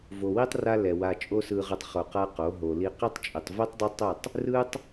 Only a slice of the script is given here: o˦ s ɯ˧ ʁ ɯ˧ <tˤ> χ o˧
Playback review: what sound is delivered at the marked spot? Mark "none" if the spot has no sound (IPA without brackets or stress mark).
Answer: tˤ